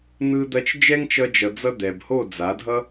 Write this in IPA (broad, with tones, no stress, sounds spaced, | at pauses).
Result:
n̪ ɯ˧ d̪ ɐ˧ t͡ʃ d͡ʒ ɛ˦ ŋ t͡ʃ ʌ˧ d͡ʒ ʌ˨ d͡z ʌ˧ d̪ ɛ˨ b h o˦˨ d͡z a˨˦ dʱ ʌ˦